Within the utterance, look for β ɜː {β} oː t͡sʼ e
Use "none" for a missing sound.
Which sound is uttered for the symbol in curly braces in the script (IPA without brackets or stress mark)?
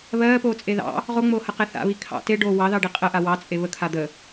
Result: p